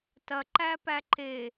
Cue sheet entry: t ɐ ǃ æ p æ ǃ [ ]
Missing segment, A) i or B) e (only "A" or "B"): B